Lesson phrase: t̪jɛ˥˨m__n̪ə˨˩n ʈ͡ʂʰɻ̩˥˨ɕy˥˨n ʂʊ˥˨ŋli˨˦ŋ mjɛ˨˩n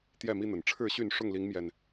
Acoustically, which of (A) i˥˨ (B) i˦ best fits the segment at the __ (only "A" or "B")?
B